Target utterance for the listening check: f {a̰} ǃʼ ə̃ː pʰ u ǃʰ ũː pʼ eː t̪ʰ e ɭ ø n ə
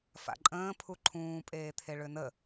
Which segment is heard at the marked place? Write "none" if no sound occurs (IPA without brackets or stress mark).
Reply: a̰